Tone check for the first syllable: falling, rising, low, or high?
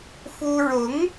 high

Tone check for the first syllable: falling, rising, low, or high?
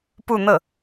falling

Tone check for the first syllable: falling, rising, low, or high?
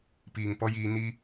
low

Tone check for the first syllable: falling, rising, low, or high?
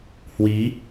rising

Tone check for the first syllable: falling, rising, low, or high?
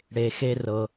low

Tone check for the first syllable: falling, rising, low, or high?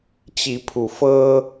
rising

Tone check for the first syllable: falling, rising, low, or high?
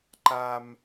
high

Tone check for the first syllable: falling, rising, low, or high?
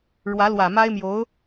rising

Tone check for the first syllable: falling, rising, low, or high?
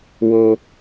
low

